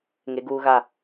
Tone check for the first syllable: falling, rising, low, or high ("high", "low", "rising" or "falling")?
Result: high